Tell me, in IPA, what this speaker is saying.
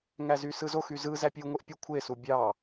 ŋ æ z y s ɯ z o x y z ɯ z æ pʲ ɯ u̯ ŋʷ e ʔ pʲ u kʷʰ e s u bʲ ɑ

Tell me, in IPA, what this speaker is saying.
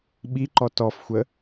ɓ i ǃ ɔ t ɔ f xʷ ə

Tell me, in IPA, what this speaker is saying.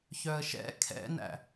ç œ ə̯ ʃ ɛ̰ kʰ ɛ̰ n æ̰

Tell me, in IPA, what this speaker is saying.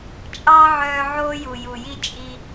t͡ʃʼ ɑ˦ ʕ œː˧ ʕ oː˦ j u˨ j u˨ j i˦ t͡ʃʼ i˧

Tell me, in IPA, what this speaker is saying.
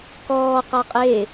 k ɔː q a qʼ e

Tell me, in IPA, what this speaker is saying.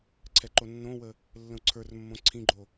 ǀʰ ɛ ǃ o nː õ w ə | lː ə̃ u̯ ǀʰ ə˞ r mː õ ǀʰ ĩ ɡ͡ǃ o

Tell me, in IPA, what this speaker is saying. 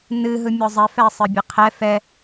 n ɨ ɦ ɯ mʲ ɔ zˤ ɛ f ɛ sˤ ɨ bʲ ɨ qʰ ɛ f ɛ

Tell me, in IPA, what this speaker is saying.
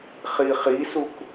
χ i χ i s u k

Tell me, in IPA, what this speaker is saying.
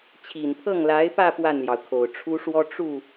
t͡ɕʰ i˨˩ n pʰ ɤ˥˩ ŋ l a˧˥ ɪ̯ p ä˥˧ p w a˥˩ n l j ɑ˩ ʊ̯ kʰ o˨˩ ʊ̯ ʈ͡ʂʰ u˥ ʂ w ɔ˥ ʈ͡ʂ u˥˩

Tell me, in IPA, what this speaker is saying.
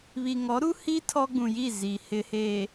β i˨ ŋ ɔ˨˦ ɾ u˦ h i˦ tʰ ɔ˦ ɡ͡b ũ˨ j i˦˨ z i˨ h ɪ˨ h eː˨

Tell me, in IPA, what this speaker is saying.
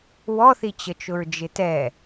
w ɔ θ i t͡ɕ ə t͡ʃ ʊ ɹ d͡ʒ ɪ t ɛ

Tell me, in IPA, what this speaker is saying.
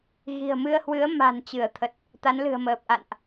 ɣ i̤˨˩ ə̯ m ɨ˧ ə̯ h w ɨ˨˦ ə̯ m a̤˨˩ n t͡ɕ ɨ˧˩ ə̯ t̪ʰ ə˨˩ t̚ | t̪ a˨˦ n l ɨ̤˨˩ ə̯ m əː˨˩ p̚ ʔ a̰˧˨ n ʔ

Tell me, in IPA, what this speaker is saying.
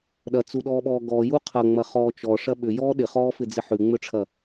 ɗ ɐ t͡s u ɗ ɔː ɓ ɔː ɡ ɔ j u qʰ ɐ ŋ͡m ɐ χ ɔː t͡ʃ ɔ ʂ ɐ ɓ ʏ j ɔː ɗ ɪ χ ɔː f ɪ d͡z ɪ ħ ʉ ŋ͡m ʏ ʈ͡ʂʰ ɐ

